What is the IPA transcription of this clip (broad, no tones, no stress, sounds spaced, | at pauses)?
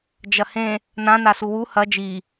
d͡ʒ ɐ h ẽ | n ã n a s u w u h ɐ d͡ʒ i